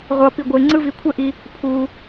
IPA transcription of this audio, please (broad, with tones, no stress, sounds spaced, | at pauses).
ʁʷ ʌ˧ p i˧ ɡʷ e˧ ŋ͡ǀ ɯ˦ v i˧ kʷʰ ɛ˦ ʔ i˧ | pʰ u˧